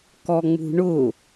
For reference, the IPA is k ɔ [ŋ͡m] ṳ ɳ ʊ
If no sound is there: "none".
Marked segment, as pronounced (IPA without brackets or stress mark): ŋ͡m